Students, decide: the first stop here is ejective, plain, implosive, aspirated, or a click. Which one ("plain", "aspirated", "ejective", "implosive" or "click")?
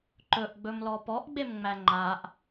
click